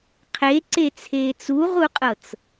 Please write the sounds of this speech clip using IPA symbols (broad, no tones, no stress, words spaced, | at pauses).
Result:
qʰeǀet͡sʰeːt͡s uʁuqʼɤt͡s